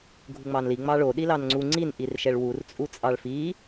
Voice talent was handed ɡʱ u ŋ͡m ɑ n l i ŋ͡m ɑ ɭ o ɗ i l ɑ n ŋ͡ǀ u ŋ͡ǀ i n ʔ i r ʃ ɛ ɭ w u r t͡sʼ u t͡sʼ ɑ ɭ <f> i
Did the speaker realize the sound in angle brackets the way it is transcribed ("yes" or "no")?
yes